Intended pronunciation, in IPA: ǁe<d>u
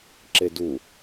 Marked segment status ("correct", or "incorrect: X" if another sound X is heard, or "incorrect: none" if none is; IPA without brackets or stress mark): correct